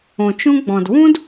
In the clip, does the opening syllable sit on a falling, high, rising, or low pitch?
low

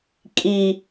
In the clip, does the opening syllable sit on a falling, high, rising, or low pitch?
low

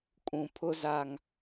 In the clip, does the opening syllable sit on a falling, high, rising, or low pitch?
low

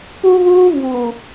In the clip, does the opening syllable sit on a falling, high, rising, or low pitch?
high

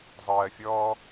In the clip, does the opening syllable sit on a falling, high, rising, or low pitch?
low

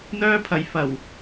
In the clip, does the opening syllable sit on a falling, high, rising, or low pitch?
high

